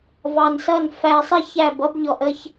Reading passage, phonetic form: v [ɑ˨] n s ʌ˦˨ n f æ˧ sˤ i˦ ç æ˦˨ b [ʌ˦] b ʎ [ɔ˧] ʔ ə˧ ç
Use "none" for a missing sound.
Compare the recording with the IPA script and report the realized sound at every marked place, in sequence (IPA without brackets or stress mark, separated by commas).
ɑ˨, ʌ˦, ɔ˧